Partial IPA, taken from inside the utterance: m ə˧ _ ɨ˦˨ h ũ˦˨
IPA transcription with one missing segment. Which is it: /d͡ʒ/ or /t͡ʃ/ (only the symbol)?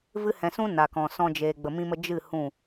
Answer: d͡ʒ